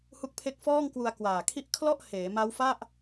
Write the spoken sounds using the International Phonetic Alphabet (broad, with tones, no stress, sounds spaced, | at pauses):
h u˦˥ k̚ pʰ e˦˥ k̚ f ɔː˥˩ ŋ k w u˧ a̯ k w aː˨˩ kʰ i˥˩ ʔ kʰ l ɔ˥˩ ʔ h eː˩˦ m a˦˥ w f a˥˩ ʔ